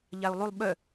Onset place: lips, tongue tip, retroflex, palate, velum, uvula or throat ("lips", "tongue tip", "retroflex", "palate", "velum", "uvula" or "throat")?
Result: palate